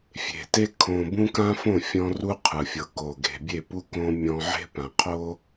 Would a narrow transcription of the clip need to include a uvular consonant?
yes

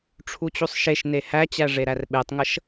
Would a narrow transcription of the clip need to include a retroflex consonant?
yes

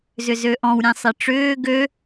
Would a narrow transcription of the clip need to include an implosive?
no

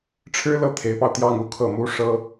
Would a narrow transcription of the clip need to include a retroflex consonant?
yes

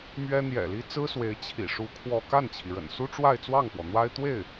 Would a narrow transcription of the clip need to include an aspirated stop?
yes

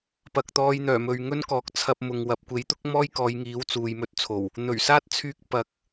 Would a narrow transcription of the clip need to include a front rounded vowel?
yes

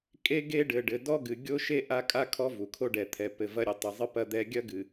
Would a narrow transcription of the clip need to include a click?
no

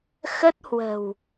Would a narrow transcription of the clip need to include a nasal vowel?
no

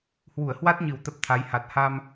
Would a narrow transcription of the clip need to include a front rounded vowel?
no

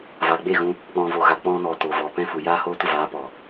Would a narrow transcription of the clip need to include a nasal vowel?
yes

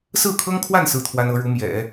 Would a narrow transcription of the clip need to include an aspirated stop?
yes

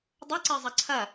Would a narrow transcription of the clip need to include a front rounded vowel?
no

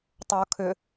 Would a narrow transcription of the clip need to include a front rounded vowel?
yes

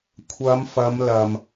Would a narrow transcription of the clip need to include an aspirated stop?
yes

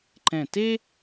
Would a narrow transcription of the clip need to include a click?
yes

